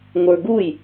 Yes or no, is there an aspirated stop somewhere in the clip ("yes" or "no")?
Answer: no